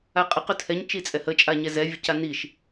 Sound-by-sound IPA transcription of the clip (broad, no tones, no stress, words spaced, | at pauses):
aqʼə qɵtʰɛɲ t͡ʃit͡sʼɛhə t͡ʃʼaɲɛzɛ vʲəcaniʃ